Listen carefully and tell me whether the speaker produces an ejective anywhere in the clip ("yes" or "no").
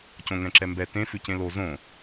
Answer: no